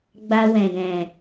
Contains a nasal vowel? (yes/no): yes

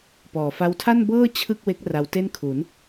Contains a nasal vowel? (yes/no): no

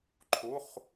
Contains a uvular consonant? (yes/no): yes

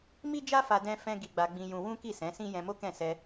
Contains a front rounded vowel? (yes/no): no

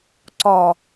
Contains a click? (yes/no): yes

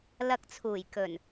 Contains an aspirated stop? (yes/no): yes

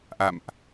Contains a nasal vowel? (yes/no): no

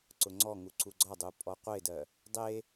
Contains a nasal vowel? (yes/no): no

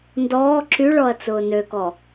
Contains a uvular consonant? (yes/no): no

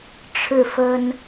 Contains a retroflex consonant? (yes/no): yes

